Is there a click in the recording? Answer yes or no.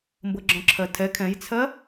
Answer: yes